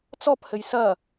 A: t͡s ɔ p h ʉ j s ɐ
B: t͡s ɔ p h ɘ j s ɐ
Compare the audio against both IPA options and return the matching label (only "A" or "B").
B